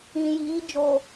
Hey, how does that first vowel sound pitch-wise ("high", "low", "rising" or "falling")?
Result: low